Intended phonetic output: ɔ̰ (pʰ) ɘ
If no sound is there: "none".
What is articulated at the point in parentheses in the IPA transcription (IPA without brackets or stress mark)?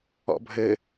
bʱ